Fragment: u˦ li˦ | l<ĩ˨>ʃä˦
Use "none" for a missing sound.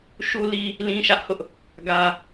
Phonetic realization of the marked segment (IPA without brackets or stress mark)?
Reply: ĩ˦